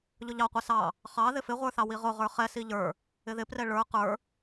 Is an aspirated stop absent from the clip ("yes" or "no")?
yes